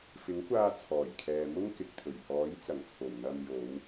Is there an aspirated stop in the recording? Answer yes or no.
yes